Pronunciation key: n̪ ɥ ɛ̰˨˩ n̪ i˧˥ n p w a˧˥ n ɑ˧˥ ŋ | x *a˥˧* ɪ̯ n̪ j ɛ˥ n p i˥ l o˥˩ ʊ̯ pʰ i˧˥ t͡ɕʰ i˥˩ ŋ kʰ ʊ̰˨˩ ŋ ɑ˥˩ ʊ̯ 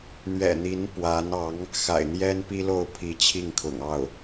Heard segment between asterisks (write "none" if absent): a̰˨˩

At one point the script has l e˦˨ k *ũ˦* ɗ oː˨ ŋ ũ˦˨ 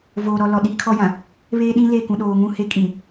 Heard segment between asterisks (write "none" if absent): ũ˨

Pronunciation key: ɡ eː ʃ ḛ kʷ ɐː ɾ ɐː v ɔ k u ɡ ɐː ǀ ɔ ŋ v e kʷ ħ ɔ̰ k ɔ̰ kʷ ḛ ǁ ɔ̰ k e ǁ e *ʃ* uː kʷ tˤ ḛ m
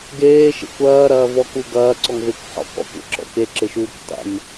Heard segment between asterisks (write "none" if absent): ʃ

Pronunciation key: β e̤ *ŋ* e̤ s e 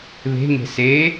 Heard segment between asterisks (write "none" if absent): ŋ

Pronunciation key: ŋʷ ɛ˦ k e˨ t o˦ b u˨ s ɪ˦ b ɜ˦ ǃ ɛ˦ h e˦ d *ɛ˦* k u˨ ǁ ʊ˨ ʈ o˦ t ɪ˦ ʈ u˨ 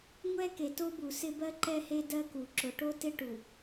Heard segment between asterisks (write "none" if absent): ɜ˦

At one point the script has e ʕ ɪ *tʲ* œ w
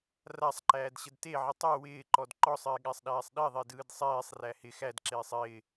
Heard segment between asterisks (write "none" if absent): tˤ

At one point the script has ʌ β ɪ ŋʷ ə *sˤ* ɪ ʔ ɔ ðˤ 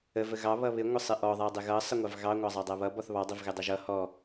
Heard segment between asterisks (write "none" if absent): sˤ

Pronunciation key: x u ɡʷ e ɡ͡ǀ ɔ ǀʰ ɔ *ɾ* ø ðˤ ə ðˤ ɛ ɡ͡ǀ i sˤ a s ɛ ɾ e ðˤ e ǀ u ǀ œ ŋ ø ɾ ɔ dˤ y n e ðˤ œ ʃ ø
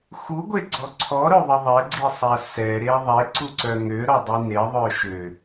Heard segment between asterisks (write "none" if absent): ɾ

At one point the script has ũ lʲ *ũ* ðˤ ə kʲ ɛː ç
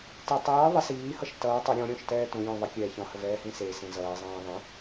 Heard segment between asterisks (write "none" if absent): ũ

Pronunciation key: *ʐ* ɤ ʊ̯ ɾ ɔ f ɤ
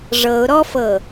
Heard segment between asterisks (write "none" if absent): ʐ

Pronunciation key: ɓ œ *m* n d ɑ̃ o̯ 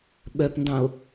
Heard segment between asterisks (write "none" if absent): p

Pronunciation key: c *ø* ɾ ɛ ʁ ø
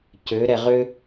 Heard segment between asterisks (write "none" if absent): ø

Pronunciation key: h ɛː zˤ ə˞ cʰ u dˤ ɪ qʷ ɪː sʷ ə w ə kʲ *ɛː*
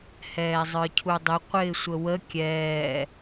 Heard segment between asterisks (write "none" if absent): ɛː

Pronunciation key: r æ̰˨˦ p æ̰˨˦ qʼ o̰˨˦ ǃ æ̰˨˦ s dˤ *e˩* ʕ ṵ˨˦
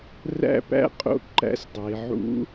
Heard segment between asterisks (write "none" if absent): e˩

